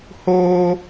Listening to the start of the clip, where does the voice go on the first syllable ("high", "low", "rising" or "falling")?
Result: high